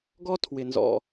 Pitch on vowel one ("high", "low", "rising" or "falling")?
high